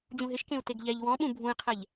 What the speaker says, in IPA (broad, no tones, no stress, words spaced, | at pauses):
d͡ʑũɦɪʃkẽu̯ teɡʎɛʎ wɔ̃ɓũ bʱũi̯qʰɛʎ